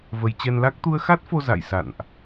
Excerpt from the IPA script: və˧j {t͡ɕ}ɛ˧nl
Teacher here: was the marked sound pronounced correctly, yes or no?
yes